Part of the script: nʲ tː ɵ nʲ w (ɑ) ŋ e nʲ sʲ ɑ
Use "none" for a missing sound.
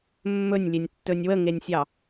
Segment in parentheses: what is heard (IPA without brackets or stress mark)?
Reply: ə